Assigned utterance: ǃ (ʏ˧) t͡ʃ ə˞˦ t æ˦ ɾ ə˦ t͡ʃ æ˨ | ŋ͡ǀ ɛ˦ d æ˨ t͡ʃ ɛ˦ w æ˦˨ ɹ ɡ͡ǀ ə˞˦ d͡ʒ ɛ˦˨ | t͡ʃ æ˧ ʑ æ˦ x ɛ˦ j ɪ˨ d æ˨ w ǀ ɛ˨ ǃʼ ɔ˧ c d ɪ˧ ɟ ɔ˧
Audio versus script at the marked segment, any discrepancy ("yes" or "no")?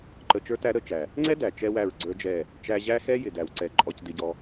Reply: yes